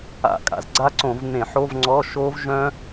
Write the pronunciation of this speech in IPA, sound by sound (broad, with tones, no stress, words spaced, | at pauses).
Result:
a̰˧˩˧kʼa̰˧˩˧z ɡ͡ǀa˦˥ǀõ˧˩˧vn̪ẽ˧˩˧ ħo˧˥˧vŋ͡ǀɔ˧˥˧ʃo˦˥v ʒœ̃˦˥